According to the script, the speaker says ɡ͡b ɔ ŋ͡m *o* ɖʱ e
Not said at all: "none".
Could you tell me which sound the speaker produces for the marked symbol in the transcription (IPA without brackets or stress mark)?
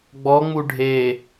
u